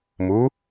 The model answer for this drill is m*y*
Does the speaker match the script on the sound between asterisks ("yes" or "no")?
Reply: no